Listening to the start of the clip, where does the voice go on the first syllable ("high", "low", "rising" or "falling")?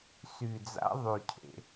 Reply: low